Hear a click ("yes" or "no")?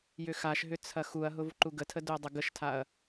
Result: yes